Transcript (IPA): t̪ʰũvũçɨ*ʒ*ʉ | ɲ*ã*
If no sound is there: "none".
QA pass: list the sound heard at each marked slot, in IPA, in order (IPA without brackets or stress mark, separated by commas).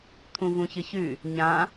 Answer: ç, ã